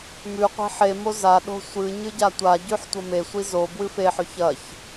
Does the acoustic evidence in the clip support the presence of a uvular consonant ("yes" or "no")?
yes